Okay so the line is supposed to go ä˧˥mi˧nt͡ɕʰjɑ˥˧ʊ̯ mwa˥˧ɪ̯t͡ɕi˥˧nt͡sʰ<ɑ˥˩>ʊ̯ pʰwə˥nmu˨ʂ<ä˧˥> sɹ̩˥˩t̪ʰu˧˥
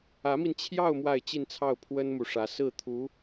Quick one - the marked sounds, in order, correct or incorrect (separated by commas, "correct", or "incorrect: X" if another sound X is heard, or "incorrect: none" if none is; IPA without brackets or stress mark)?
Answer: correct, correct